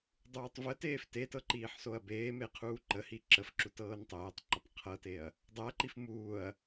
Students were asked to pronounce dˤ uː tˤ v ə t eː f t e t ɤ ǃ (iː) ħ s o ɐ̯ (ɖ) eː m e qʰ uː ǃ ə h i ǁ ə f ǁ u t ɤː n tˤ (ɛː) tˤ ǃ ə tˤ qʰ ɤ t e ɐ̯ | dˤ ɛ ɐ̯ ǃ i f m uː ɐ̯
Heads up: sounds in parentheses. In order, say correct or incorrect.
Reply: correct, incorrect: b, incorrect: eː

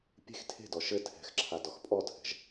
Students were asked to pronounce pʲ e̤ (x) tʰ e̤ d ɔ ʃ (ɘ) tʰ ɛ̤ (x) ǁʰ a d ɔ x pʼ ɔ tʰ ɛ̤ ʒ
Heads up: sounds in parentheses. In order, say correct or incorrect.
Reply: correct, correct, correct

